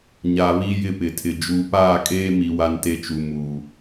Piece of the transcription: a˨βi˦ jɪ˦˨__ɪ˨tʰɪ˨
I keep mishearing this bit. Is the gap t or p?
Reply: p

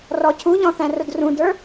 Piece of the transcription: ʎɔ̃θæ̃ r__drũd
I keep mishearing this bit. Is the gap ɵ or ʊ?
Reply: ʊ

